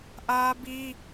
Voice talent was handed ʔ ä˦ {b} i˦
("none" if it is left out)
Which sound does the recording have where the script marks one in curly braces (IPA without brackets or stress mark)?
b